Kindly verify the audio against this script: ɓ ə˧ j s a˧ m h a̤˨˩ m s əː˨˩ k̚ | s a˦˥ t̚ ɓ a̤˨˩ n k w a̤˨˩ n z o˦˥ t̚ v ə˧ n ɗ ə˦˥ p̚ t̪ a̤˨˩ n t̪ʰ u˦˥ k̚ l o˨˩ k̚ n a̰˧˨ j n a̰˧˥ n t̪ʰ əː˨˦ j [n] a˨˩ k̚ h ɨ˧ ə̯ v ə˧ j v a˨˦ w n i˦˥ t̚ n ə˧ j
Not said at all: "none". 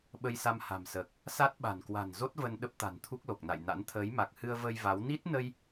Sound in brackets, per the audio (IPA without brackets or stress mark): m